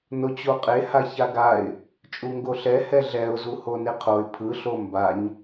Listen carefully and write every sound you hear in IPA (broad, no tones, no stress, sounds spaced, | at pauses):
n o t͡ɕ o qʼ e h a ç a ɡ a ɪ̯ | t͡ʃʼ u ŋ ɡ o ɬ ɛ h ɛ ɮ ɛ ʊ̯ z u h o n e qʰ o ɪ̯ pʰ ɯ ɬ o m b a ɲ